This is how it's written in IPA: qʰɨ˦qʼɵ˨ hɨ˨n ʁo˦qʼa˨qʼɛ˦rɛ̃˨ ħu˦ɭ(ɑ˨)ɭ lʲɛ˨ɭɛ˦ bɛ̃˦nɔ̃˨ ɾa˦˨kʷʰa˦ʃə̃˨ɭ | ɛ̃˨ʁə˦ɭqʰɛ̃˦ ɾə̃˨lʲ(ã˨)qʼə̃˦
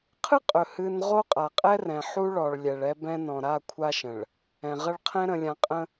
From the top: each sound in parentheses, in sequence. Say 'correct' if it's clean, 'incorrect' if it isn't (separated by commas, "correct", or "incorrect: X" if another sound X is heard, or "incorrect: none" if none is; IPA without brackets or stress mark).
incorrect: ɔ˨, correct